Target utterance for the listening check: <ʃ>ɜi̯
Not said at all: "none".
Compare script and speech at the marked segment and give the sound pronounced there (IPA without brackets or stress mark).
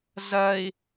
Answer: z